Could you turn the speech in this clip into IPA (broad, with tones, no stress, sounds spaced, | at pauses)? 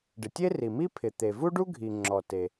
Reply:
ɖ ɪ˩ tʲ e˥ r i˩ m i˥ pʰ ɪ˩ t̪ e˩ v u˥ ɖ u˥ ɡʱ i˩ ŋ͡ǁ ɔ˩ t e˩